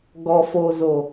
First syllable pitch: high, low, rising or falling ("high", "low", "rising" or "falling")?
low